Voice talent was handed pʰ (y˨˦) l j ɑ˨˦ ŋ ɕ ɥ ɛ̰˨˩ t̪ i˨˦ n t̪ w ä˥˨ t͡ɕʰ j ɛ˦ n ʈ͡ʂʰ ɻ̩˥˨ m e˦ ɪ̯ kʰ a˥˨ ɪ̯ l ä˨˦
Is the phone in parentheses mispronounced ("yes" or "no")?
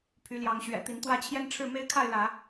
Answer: no